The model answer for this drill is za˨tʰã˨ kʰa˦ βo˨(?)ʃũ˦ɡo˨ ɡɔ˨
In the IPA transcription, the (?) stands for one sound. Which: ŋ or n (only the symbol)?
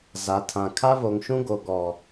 ŋ